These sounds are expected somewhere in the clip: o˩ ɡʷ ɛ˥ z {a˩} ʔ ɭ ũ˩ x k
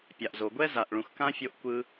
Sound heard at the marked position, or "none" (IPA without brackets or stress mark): a˩